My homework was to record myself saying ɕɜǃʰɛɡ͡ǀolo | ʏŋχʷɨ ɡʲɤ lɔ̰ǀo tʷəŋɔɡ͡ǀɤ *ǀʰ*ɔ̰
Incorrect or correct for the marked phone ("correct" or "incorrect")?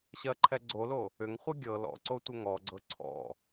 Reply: correct